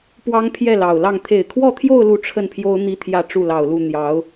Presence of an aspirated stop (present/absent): present